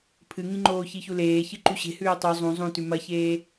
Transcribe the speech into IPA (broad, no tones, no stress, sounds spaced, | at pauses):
pʰ ɨ ŋ ĩ ŋ͡ǃ oː ç i ç u l eː ç ɨ ǃ u ɕ e̤ h ʉː tˤ u zˤ ũ zˤ ũ t ʉ m ɐ ç eː